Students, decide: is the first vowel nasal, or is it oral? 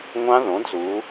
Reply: nasal